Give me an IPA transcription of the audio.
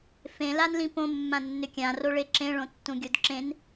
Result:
f ẽ l a n l ĩ p õ mː ã nː ʏ kʲ ã r o ɭ e ǁ ẽ ɭ õ tː ũ ɡʲ o d ǁ ẽ n

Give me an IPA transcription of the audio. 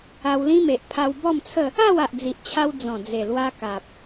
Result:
a˧ w l ĩ˦ m e˨ ʔ pʰ a˧ w b ɔ˥˧ m t͡sʰ ə˥˧ | a˥˧ w a˨ ʔ d͡z i˨ ʔ t͡ɕʰ a˧ w d͡z ɔ̃˨˩ d͡z e˨˩ l w a˧ k a˨ p̚

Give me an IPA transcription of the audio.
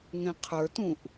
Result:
ŋ ɛ̃ qʰ ə˞ t ũ ʔ

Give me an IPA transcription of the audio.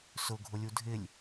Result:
s ʊ ɡʱ ʊ lʲ u dʱ ɪ lʲ

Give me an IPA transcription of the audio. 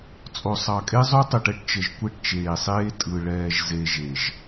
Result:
t͡sʼ o˨ sˤ ɑ˨ kʼ e˦ zˤ o˦ tˤ ɯ˨ ʈ ɛ˦ ʈ t͡ʃ ə˨ ʒ kʷ e˦ ʈ t͡ʃ eː˨ sˤ eː˦ tʼ ɯ˨ ɭ ɛː˨ ʒ z e˨ ʒ e˨ ʒ

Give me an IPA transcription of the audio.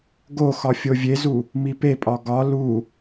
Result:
ɡ o x ɒ fʲ o vʲ e z u | m i p e pʼ ɒ ɡ ɒ l u

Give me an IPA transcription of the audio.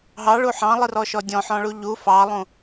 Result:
ɦ ɑ ɭ u ħ ɑ̃ lˠ ɨ r ɔ ʃ ɔ dʲ ɔ̃ ħ ɔ̃ ɭ u ʎ u f ɑ lˠ ũ

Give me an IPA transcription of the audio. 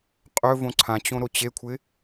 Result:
qʼ ɵ v õ ǀʰ ã t͡ɕ õ ɾ o t͡ɕ e kʷʰ ɪ

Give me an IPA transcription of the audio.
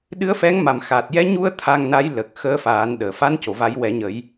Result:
ɗ ɨ˧˥ ə̯ f ɛ˧˥ ŋ m a˨˩ m x a˨˩ t̚ j ɛ˧˥ ɲ u˧ ə̯ t̪ʰ a˧ ŋ n a˧˥ j l ə˨˩ k̚ x əː˧˥ f aː˨˩˦ n ɗ əː˨˩˨ f a˧˥ n c o˨˩˨ v a˨˩˦ j w ɛ˨˩˦ ɲ ə˨˩˦ j

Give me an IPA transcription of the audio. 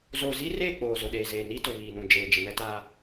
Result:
z oː˨ z i˦ r eː˦˨ k͡p oː˨ z ʊ˨ ɗ eː˨ z eː˨ n i˦ t ʊ˨ β iː˨ n ũ˨ d͡ʒ eː˨ d͡ʒ ɪ˨ n ɛ˦ t aː˦

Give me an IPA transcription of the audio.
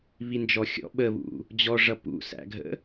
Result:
β i n d͡ʒ ɔ xʲ ɔ̰ ɓ ə β ṵ | d͡ʑ ɔ ʐ ʌ p ṵ s æ̰ ɡʱ ə̰

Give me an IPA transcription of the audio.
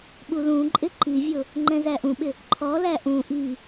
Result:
ɓ u l ũ ǃʼ ɪ ǃ i vʲ ʊ | ŋ͡ǃ ɛ̃ z æ ʔ ũ ɓ ɪ | ǃʰ ɔ l æ ʔ ũ ʔ i

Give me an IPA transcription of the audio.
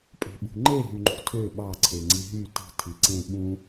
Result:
pʼ e̤ ɓ ṳ ŋ͡ǃ e ɦ y ŋ͡ǃ ṳ tʰ ø ɓ ɑ ǀʰ e ŋ͡ǀ i ɦ y t i̤ tʰ i ǀ ẽ ɓ ũ

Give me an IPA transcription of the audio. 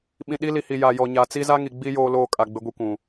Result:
ɓ ĩ˨ ɗ i˦ l i˨ h i˨ j a˨ j ɔ˨ ɲ a˨ t͡s i˦ z a˦ ŋ i˨ ɡ͡b i˦ j oː˦ l oː˦ kʼ a˨ ɡ͡b ɪ˦ ɡʷ i˦ kʷ ũ˨

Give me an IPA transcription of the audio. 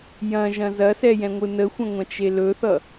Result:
j ɐ̃ ʒ ɐ̃ z ɐ s ɛ j ɛ̃ ŋʷ ɯ n ə xʷ ɐ̃ ŋʷ ɐ̃ t͡ʃ e l ɵ θ ʌ

